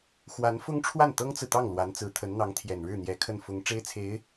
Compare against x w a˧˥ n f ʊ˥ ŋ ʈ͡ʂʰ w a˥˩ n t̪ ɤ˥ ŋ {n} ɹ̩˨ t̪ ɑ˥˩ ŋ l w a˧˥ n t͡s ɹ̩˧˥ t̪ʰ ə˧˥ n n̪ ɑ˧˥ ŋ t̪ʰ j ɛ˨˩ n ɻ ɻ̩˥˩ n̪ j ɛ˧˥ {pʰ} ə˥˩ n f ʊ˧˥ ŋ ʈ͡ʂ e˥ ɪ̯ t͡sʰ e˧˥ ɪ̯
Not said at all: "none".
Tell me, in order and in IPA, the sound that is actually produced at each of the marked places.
t͡s, kʰ

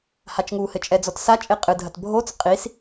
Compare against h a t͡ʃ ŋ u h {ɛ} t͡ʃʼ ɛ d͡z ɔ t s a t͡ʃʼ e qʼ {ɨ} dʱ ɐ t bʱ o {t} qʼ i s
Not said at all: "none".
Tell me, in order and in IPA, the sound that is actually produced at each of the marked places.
ɘ, ɨ, t͡s

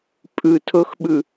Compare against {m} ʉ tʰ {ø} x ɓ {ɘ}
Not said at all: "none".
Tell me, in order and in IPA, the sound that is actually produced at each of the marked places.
pʼ, ɵ, ʉ

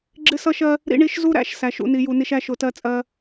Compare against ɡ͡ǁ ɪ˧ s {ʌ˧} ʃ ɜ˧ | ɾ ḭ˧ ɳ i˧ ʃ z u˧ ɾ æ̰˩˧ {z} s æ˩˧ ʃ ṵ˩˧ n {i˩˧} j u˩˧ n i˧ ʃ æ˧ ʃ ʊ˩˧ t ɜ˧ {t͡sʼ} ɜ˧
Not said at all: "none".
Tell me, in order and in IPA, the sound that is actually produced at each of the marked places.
ʌ˧, ʃ, i˩˧, t͡sʼ

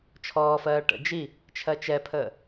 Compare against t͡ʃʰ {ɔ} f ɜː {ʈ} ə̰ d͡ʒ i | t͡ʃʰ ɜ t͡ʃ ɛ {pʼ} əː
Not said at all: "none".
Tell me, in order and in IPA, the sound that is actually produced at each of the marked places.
ɔː, ʈ, pʰ

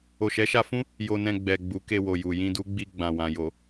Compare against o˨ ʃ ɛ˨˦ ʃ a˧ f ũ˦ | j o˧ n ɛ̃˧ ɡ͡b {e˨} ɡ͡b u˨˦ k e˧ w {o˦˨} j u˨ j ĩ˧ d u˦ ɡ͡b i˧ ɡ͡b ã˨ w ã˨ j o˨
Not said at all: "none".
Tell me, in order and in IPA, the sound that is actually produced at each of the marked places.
ɛ˨, o˨

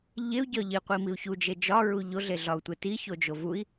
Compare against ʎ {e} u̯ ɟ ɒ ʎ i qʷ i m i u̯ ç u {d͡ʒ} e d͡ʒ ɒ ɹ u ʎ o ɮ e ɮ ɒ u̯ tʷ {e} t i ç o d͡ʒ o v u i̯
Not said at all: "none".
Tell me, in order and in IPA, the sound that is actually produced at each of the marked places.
e, d͡ʒ, e

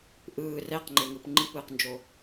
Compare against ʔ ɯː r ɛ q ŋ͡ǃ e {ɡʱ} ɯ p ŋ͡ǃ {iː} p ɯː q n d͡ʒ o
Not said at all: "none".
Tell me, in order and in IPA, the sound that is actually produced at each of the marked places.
ŋ, i

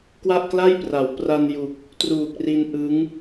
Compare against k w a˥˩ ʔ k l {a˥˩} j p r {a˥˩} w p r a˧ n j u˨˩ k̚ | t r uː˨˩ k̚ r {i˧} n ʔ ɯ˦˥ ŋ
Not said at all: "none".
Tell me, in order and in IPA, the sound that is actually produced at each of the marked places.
a˥˩, a˩˦, i˧

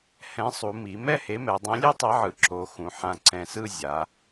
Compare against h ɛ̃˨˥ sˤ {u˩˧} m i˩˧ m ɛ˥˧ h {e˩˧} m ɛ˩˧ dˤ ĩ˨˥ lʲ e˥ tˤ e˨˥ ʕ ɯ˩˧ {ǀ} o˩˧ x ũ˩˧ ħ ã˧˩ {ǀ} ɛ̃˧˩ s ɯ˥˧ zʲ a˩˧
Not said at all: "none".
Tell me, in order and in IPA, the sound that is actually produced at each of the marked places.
u˩˧, e˨˥, ǁ, ǀ

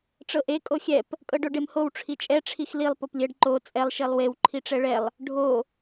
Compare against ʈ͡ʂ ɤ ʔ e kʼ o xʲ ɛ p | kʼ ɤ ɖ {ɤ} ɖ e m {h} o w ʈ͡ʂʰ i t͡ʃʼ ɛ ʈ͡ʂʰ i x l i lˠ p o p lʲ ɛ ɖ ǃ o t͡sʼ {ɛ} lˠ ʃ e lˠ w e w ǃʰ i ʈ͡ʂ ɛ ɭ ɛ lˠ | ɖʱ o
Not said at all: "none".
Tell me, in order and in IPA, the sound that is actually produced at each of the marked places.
o, h, ɛ

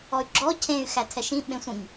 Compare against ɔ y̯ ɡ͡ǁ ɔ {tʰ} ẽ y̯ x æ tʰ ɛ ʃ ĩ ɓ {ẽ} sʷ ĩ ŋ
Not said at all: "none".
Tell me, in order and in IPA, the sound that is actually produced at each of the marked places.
cʰ, ẽ

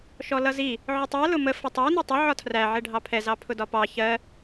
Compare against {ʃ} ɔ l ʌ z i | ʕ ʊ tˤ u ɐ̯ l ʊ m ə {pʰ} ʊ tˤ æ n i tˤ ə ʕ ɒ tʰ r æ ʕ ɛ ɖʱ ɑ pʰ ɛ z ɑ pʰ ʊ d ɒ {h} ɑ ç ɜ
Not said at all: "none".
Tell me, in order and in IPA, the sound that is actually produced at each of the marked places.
ʃ, f, p

